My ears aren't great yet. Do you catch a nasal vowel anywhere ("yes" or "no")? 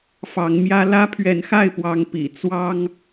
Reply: no